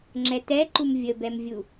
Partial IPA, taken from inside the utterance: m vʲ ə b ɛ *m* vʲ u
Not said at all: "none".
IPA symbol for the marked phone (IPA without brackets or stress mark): m